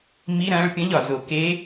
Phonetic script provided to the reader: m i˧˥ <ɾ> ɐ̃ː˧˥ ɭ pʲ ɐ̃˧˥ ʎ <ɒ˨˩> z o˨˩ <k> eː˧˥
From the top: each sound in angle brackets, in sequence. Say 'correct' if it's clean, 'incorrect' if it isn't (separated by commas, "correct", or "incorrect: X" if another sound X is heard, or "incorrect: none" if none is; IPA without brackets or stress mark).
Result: correct, correct, correct